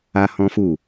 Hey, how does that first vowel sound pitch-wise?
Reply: high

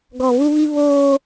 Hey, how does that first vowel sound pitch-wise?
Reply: low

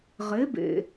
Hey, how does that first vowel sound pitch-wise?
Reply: rising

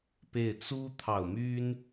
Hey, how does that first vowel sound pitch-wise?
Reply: falling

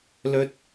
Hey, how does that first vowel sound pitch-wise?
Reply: high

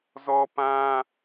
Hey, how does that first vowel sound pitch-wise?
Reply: high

